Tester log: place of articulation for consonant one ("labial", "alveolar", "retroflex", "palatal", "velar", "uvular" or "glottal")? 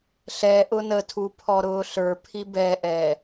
alveolar